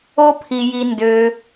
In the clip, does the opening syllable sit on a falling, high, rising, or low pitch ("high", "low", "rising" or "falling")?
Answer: high